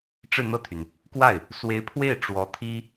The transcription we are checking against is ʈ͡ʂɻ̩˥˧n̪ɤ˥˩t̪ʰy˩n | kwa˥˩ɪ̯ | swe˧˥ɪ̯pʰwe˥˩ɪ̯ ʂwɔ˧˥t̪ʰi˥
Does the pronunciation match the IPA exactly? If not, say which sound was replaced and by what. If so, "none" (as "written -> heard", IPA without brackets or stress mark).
ʂ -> ʈ͡ʂ